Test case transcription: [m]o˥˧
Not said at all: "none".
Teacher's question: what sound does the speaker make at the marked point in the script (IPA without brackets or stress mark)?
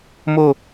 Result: m